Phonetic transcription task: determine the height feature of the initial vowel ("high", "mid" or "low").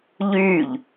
high